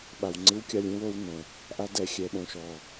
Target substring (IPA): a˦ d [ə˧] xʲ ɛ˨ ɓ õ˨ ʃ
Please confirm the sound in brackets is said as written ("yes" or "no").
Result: no